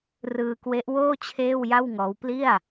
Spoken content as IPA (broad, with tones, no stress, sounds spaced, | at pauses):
r ɯː˧ k w e˦˥ ʔ w oː˥˩ t͡ɕʰ eː˥˩ w j a˥˩ w ŋ ɔː˦˥ w p l i˥˩ a̯